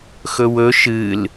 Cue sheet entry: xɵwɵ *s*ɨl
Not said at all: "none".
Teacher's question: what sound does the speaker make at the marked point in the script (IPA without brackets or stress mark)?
ʃ